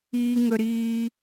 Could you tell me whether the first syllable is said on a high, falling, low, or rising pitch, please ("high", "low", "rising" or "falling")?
high